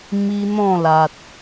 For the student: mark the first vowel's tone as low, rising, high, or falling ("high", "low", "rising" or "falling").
high